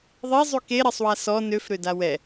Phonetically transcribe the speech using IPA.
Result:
ðˤezˤy keɾɛsˤwa sɔ nøfɾøda wɛ

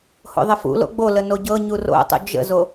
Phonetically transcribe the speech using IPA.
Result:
ho̰ðˤəfṵlo̰ ɡ͡bolə noɟɤɲu ro̰tˤṵ d͡ʒə̰zo

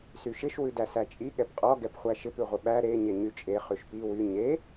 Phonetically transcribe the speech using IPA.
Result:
syʃɪʃ wʉdæsæt͡ʃʼi ɠɛpqʼɔ ɡɛpχʷæʃɪp ʉʁʷɪɓæ ɾe ɲeɲyt͡ʃʼe χyʃpi wy ɲe

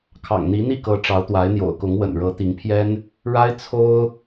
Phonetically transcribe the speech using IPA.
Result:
kʰɑ̰˨˩ŋn̪i˧˥n̪i˥˩kɤ˧˥ ʈ͡ʂɑ˧˥ʊ̯t̪wa˧˥ɪ̯n̪jo̰˨˩ʊ̯kʊ˧˥ŋ wə̰˨˩nɻɤ˧˥t̪i˧˥ŋpʰjɛ˥n | ɻa˥ɪ̯t͡sʰo˥ʊ̯

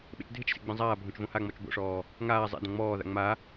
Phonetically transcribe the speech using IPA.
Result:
ɓḛt͡ʃdʱɪt͡ʃsḛ ɡ͡bẽzˤaːbʱõt͡ʃ võhaŋ͡mɔt͡ʃ bo̰ʂɔː | ŋaː zˤḛ dɔ̃ŋ͡mɔːða̰ ŋ͡ma

